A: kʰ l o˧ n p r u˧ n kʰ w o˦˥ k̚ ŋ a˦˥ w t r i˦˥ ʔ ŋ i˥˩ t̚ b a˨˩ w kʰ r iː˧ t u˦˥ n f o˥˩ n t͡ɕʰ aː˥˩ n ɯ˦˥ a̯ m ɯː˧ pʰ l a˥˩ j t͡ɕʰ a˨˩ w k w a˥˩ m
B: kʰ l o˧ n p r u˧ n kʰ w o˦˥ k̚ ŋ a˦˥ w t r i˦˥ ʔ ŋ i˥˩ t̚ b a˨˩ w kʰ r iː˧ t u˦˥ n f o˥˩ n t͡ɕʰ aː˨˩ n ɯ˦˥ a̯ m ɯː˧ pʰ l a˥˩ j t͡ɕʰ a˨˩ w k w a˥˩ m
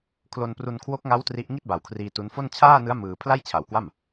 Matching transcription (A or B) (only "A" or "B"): A